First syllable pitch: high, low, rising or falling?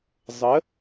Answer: rising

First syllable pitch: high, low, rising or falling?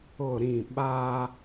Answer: falling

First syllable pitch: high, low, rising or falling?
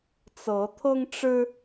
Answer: rising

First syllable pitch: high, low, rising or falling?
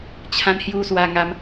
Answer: high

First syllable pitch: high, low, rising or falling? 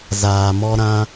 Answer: low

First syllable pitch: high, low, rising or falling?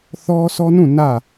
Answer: high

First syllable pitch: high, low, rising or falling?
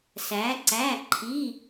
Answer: rising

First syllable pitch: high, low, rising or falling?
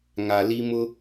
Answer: low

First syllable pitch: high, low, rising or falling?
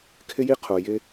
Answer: high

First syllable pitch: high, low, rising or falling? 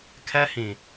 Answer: high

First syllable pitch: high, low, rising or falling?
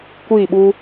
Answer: falling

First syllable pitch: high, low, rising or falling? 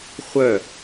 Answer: falling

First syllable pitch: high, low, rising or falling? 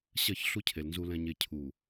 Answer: falling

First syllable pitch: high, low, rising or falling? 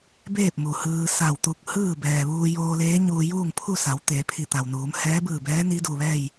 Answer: falling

